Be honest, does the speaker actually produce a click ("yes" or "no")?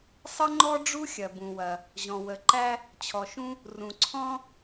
yes